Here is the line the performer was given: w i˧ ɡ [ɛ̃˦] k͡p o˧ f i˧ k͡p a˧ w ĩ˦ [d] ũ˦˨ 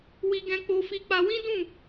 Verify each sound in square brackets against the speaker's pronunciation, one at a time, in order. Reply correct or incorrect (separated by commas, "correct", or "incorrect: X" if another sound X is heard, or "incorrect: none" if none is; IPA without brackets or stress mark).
incorrect: ɛ̃˧, correct